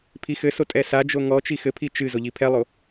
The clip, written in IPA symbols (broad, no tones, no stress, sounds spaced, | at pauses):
pʰ i x ɘ s o tʼ ɛ s a d͡ʒ o ŋ ɔ t͡ʃ i x ɘ pʰ i t͡ʃ ɨ z o ʎ i pʰ ɛ lˠ o